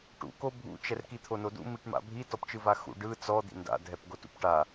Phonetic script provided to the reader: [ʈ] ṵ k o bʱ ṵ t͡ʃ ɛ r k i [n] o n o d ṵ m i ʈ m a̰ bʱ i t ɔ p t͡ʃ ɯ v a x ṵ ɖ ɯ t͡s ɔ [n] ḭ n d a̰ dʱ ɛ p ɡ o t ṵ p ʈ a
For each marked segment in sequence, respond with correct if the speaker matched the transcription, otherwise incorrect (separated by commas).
correct, incorrect, incorrect